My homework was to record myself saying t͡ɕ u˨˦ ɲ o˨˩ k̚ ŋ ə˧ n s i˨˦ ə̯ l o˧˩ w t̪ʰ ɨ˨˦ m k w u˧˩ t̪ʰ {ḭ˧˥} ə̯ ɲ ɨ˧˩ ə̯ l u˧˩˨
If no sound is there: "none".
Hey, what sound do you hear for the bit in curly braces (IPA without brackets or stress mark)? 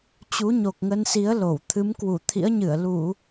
ḭ˧˥